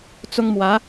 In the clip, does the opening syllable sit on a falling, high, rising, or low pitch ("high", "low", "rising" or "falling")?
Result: high